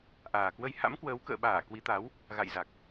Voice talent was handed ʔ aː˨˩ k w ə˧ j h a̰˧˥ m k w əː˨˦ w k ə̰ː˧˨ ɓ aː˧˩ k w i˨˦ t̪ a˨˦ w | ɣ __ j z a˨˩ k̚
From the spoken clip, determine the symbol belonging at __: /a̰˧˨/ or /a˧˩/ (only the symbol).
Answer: a̰˧˨